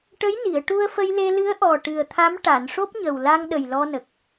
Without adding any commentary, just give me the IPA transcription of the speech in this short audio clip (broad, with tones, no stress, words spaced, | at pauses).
ʈə˧˥j ni˨˩˨ə̯ʈu˧ə̯fə˧jle˧ lɨ˧˥ə̯ʔɔ˨˩ ʈɨ˨˩ə̯t̪ʰa˧˥m ʈa˨˩˨nʂo˦˥p̚ɲə˨˩w la˧ŋ ɗə˨˩jlɔ˧nə˨˩k̚